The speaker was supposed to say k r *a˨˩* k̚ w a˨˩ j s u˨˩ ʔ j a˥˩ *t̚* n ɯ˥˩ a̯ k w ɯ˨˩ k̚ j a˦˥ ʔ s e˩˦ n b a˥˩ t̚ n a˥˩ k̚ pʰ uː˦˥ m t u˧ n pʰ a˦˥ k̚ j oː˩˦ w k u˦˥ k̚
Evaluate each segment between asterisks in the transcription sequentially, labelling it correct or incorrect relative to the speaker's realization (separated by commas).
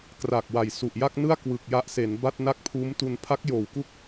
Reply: correct, incorrect